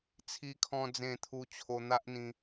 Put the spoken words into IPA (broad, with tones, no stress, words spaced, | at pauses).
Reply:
t͡sʰi˧kʰɔ̃˧d͡zẽ˧t̪ʰu˧ t͡ɕʰo˧n̪a˦ʔn̪ĩ˧